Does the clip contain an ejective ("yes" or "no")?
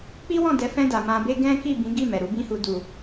no